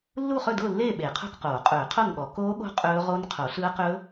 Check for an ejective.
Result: present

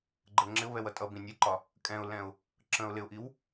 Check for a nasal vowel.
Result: present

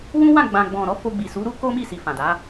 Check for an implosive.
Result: absent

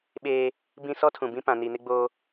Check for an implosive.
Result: present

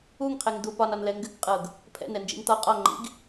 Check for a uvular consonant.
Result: present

